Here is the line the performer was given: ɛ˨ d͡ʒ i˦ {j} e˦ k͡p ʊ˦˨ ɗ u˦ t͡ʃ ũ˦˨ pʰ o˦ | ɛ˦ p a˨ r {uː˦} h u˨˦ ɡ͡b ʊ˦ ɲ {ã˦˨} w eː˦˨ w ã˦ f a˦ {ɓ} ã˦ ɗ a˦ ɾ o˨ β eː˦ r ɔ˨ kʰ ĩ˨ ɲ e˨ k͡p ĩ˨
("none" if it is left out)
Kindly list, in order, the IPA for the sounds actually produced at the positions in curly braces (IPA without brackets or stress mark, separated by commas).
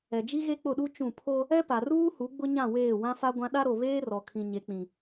ɣ, uː˦, ã˦˨, ɡʷ